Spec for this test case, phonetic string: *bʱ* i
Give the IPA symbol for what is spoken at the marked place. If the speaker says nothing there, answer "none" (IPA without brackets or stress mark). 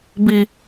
b